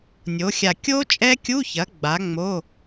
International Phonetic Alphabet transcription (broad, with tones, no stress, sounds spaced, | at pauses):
nʲ o˩˥ xʲ a˧˩ kʲ o˦˥ t͡ʃʼ ɛ˦˥ kʲ u˧˥˧ ç ɐ˩˥ ɡ͡b a˩˥ ŋ͡m o˧˥˧